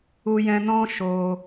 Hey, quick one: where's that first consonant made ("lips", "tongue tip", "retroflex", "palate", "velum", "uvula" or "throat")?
palate